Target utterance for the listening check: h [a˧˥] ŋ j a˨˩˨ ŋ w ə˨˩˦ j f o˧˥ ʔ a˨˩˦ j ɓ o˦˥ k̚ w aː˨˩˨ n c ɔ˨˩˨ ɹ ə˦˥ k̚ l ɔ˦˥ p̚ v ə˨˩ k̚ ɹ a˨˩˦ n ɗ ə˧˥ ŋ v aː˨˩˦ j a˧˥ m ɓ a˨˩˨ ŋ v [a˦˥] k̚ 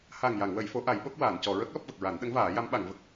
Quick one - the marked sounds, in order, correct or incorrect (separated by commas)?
incorrect, incorrect